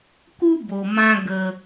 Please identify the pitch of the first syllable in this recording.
high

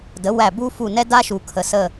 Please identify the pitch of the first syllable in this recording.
rising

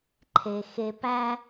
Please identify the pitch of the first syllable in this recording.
low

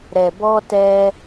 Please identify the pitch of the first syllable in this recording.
low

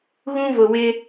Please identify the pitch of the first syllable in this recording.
high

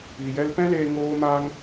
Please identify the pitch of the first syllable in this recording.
low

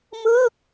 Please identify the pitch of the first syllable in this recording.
falling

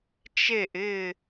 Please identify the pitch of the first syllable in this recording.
falling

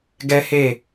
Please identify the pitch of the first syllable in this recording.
high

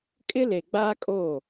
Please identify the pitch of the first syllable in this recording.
high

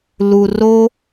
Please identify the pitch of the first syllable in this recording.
low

